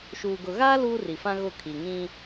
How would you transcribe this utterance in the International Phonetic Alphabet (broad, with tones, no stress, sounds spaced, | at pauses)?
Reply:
ʃ uː˨ ɡ ʊ˨ ɣ aː˦ l uː˦ r i˨ f ã˦ ɣ ʊ˦˨ kʰ i˨ ŋ ĩ˦